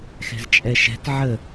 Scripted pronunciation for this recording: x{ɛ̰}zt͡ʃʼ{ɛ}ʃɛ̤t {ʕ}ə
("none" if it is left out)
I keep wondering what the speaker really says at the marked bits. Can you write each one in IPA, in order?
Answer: ɛ̤, ɛ, ʕ

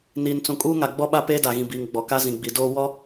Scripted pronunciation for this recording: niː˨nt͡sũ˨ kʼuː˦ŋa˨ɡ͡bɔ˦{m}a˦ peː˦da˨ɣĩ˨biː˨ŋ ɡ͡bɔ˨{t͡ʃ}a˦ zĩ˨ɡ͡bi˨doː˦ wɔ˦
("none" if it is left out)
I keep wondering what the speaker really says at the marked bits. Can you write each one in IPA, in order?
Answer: ɓ, k

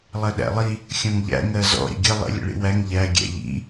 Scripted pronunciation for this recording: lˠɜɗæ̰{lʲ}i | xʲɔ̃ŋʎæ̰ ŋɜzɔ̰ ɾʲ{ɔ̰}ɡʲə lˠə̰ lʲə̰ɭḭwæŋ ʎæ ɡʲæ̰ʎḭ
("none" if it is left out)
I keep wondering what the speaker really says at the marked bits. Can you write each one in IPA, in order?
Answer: lˠ, ə̰

